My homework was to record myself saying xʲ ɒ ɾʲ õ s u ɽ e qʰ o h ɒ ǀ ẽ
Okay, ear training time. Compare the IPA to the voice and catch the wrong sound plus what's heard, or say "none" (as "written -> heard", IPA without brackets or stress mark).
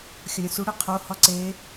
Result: ẽ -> e